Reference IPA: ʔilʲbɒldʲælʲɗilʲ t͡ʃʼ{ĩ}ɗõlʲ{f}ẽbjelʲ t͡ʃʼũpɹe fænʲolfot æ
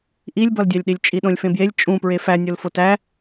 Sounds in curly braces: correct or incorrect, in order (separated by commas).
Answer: incorrect, correct